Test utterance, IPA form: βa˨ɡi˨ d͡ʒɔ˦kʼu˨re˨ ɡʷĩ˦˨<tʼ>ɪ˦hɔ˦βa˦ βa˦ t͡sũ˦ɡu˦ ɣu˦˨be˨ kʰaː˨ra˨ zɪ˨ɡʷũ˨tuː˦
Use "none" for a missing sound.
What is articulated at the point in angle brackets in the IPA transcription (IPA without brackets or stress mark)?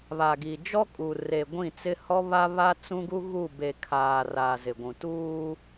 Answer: t͡s